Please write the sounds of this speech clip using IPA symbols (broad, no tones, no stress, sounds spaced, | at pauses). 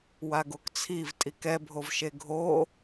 w a ɡ o k t͡sʰ i v tʼ i k ɛ bʱ o v ʃ e ɡʱ o